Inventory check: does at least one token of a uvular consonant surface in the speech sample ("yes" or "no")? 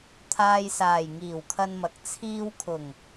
no